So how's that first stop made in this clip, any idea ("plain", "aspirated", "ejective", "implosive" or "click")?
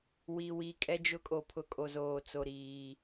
ejective